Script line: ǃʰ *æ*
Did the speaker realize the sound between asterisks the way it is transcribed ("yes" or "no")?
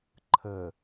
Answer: no